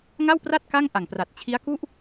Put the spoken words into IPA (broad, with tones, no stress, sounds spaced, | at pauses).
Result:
ŋ a˥˩ w p r a˥˩ t̚ k a˥˩ ŋ ʔ a˨˩ ŋ p r a˨˩ t̚ t͡ɕʰ i˦˥ a̯ k u˥˩ ʔ